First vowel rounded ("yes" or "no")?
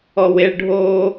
yes